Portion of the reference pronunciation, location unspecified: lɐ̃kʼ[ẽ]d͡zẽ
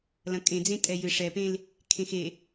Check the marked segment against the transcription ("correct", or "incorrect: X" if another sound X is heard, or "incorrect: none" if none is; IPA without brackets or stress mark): correct